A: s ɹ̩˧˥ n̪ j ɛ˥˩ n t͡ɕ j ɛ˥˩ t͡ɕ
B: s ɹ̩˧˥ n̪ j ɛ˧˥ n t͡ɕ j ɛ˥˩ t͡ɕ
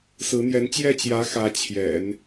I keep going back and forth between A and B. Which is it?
B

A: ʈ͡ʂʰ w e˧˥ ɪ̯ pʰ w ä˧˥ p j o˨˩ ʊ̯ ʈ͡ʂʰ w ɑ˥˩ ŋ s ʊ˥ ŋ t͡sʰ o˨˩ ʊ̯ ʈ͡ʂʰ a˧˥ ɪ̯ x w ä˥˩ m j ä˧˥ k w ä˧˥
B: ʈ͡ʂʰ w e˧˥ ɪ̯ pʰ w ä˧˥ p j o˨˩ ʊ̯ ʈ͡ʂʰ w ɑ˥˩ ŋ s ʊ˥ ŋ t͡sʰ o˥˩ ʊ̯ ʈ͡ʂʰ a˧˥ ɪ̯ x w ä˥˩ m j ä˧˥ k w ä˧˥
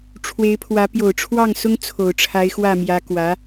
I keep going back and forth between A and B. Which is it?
A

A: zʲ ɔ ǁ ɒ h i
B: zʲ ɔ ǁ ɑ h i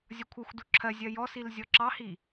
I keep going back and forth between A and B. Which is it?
B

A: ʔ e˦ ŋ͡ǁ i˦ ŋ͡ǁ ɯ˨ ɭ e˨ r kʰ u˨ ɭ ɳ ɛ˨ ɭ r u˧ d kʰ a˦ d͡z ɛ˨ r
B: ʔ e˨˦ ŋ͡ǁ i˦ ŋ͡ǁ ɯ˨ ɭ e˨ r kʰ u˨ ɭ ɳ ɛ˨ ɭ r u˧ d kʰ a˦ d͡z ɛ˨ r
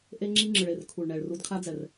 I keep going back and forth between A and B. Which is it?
A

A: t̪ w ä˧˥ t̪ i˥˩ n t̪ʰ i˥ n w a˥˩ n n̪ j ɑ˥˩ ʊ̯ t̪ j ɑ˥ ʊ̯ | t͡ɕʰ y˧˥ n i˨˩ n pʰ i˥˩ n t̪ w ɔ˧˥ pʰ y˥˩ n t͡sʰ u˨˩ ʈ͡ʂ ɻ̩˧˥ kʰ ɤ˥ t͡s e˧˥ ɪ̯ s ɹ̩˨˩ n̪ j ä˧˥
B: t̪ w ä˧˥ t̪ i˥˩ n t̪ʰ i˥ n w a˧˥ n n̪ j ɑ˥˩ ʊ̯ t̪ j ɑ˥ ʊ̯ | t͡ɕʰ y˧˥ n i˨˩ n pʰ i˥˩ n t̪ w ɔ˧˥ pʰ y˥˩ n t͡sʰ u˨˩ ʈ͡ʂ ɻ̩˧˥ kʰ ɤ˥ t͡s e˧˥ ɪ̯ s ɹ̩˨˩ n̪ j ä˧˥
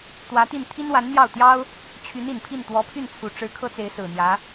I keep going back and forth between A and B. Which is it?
B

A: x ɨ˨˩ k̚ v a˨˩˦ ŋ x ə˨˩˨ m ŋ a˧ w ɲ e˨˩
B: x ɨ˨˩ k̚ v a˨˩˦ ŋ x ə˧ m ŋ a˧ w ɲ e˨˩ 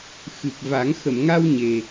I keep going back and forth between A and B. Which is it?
A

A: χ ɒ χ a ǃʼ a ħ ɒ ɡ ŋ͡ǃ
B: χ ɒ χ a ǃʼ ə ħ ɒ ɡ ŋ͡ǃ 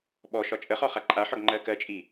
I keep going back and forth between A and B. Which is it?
A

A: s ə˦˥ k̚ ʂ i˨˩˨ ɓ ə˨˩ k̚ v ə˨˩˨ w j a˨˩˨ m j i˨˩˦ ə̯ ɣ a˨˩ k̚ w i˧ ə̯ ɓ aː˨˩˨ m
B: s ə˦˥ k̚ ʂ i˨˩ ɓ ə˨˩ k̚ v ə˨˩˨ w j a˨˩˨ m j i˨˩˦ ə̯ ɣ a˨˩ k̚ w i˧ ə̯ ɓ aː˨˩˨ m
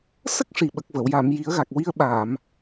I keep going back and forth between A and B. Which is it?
B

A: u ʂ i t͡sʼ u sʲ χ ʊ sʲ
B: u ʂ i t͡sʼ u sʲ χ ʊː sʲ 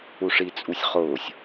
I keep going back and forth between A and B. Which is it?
B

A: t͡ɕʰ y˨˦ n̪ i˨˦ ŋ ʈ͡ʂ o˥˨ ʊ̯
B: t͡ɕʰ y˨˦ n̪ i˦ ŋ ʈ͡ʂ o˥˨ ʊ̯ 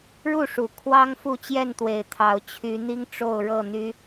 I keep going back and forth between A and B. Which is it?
B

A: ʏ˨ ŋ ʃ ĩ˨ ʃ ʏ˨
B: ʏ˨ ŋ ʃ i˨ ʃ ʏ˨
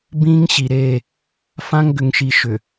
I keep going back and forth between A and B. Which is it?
B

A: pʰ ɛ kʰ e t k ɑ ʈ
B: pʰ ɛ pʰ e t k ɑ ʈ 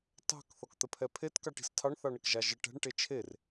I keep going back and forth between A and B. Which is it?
B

